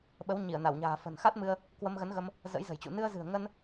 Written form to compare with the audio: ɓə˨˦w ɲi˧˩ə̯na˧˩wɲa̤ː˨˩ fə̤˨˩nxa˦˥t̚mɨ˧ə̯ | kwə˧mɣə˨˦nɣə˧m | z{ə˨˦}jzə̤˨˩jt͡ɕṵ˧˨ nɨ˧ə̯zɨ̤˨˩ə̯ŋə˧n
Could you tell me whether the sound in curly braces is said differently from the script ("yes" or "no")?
yes